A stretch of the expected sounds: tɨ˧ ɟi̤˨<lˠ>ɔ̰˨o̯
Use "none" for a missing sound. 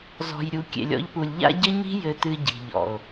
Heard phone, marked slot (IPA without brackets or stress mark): ʎ